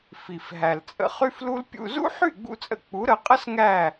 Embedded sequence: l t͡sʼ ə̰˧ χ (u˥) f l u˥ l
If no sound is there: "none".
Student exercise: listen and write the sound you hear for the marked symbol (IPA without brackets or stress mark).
y˥